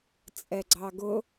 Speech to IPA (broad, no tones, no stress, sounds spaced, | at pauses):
t͡sʼ ɛ ɡ͡ǀ ɑ ɡ ʊ